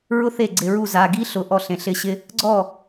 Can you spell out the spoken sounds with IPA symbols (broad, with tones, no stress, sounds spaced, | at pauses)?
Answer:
ɹ ʊ˥ θ e˥˩ ɡ͡ǀ ɪ˩˧˩ ɹ u˥˩ z a˩˧˩ ɡ i˥ ɬ ʊ˩˧˩ ʔ ɔ˥˩ ɬ ẽ˩˧˩ ɬ ɪ˥˩ ɕ ɪ˥ | ɡ͡ǀ ɔ˥˩